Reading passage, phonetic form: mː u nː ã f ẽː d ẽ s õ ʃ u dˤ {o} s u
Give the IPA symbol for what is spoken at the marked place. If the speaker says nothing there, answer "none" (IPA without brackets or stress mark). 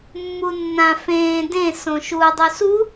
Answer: u